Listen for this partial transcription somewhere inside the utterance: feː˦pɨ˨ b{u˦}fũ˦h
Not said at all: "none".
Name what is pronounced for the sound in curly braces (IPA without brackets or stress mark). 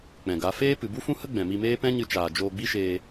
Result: u˦